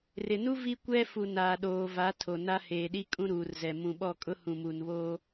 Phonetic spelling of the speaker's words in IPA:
r ɪ˨ n u˦ v i˦ kʷ ɛ˦ f u˨ n aː˨ ɗ oː˨ v a˨˦ tʰ o˨ n a˦ h eː˨ ɗ i˦ kʼ ũ˦ ɾ uː˨ r z ɛ˨ m ũ˨ ɓ ɔ˦˨ kʼ ʊ˦ h ũ˨ m u˨ n β oː˦

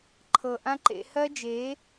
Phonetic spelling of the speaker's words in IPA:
ǃʰ ɤ˨ ʔ ã˦ ǃ ḛ˧ h ɜ˦ d͡ʒ e˨˦

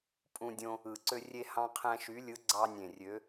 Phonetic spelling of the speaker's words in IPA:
pʼ ũ˦ dʲ õ˦ | ɯ˨˩ ǀ ø˦ rʲ e˦ h ɑ̃˦ qʰ æ̃˦ ʃ y˨˥ lʲ ɯ˨˥ ɡ͡ǀ ɑ˦ nʲ ẽ˨˩ rʲ ø˨˥

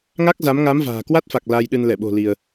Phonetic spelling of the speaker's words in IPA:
ŋ a˦˥ k̚ z a˨˦ m ŋ a˨˦ m v a̤ː˨˩ k w a˦˥ t̚ f a˨˩ k̚ l a˧ j ɗ ɨ˧ n l ɛ˧˩ ɓ o̤˨˩ l i˧ ə̯

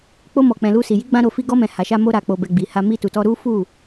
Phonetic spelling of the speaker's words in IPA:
k͡p o˧ m ɔ˨ k͡p ɛ̃˨ l u˧ s i˨ j i˨˦ ɡ͡b ã˧ ɾ o˨ f i˧ ɡ ɔ˧ m ɛ̃˨ h a˨ ʃ a˧ m o˧ ɾ a˨ k͡p o˨ b ɛ˨ ɡ͡b i˨ h a˧ m i˧ t u˨ t ɔ˧ ɾ u˦ f u˦˨

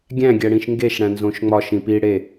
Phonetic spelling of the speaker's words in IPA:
ɡʲ æ̃ ɡʲ æ ɽ ĩ ʃ ŋ ɡ e ʃ ɽ æ̃ n z õ ʃ ŋ͡m ɒ ʃ ĩ p i ɽ e

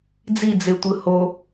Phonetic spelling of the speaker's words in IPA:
d͡z i d͡z e tʷ ɯ h o

